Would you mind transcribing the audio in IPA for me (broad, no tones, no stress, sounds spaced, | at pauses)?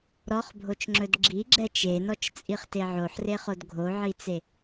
ɾ ɔ χ bʱ o t͡ʃ ŋ͡ǁ ɵ d ɡ͡ǁ i ɡ͡ǁ ɛ t͡ʃ e n ɔ t͡ʃ t͡sʼ i χ t e ʕ o ħ r e χ o d ɡʱ o ʕ i t͡s e